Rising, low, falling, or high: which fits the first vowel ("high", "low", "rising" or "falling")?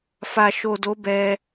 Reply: low